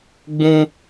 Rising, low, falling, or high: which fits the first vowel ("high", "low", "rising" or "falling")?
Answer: high